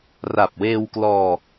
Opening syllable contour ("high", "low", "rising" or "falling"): low